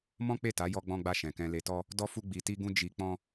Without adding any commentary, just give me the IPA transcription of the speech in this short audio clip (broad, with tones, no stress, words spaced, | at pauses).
mɔ̃˦k͡pe˦˨ta˨˦ jɔ˦ɡ͡bɔ̃˦ɡ͡ba˦˨ ʃɛ̃˨kɛ̃˧le˧tɔ˦ | dɔ˦fu˦ ɡ͡bi˧ti˦ɡũ˦ d͡ʒi˧ k͡pɔ̃˦